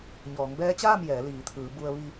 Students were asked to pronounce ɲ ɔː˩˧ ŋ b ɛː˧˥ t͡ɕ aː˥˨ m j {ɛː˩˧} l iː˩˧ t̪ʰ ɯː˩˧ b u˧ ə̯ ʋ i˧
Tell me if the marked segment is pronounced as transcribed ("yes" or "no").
yes